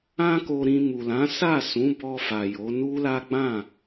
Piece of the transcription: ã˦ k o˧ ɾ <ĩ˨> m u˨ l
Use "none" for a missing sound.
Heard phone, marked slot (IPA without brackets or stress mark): ĩ˧